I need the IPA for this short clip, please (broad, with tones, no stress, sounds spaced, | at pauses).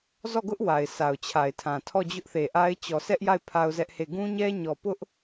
z ɔ˦˨ ɡ ʊ˦ ʔ w a˨ ɪ̯ s a˨ ʊ̯ t͡ɕʰ a˨ ɪ̯ tʰ ã˨ tʰ ɔ˦˨ d͡ʑ ʊ˦ ʔ θ e˨ ʔ a˦ ɪ̯ t͡ɕ ɔ˨ sʰ ɛ˦ ʔ j a˦˨ ɪ̯ pʰ a˦ ʊ̯ z ɛ˦ ʔ h e˦˨ ɡ ũ˦ ɲ ɛ˦ ɲ ɔ˨ p ʊ˦ ʔ